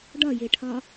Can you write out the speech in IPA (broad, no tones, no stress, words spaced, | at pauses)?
ɖɒjeʈʰɒ